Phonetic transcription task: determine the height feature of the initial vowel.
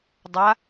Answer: low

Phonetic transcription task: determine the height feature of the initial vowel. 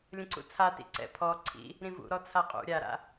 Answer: mid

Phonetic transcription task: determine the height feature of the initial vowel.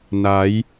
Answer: low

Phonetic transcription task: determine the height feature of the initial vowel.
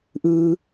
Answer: high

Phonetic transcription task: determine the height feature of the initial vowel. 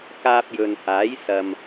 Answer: low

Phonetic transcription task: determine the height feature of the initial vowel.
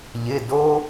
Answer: high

